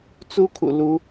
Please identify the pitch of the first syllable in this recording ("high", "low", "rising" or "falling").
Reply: high